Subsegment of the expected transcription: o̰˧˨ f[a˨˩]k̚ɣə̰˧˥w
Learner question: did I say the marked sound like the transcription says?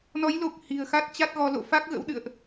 no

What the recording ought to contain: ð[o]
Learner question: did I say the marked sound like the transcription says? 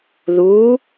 no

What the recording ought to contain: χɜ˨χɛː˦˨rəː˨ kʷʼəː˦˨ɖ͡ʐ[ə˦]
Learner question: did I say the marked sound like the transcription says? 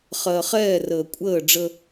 yes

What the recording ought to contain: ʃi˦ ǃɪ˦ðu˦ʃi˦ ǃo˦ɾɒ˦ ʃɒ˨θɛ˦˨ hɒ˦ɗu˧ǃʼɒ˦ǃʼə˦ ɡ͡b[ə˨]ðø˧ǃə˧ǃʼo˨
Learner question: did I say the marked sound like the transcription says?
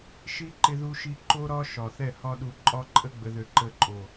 no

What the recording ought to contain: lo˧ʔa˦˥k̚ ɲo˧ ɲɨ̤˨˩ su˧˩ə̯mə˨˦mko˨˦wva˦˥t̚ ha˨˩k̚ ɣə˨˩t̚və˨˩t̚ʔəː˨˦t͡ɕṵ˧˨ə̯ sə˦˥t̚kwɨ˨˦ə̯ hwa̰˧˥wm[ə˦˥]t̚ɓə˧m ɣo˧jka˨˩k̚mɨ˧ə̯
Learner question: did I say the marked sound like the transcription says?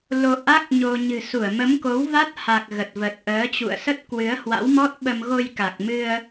no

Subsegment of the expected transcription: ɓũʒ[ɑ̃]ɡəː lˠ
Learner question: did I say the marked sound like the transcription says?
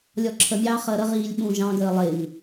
yes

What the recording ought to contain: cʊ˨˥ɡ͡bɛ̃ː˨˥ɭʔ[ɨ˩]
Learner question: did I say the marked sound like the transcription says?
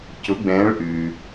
no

